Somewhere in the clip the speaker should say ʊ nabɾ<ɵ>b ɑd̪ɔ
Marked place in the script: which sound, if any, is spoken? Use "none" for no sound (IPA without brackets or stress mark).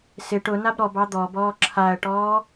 ɔ